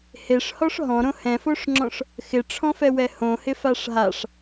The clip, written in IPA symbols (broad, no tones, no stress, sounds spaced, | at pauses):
h e ʂ h ɔ ʂ ɦ ɔ̃ ɾ õ h ɛ̃ f o ʂ ŋ͡ǁ ɔ̃ ʂ | x ɪ ʈ͡ʂʰ ɔ̃ f ɛ w ɛ h õ h ɪ f a ʂ ɦ a ʂ